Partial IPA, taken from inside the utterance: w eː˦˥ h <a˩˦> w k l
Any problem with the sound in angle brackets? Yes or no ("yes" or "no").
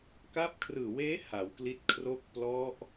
no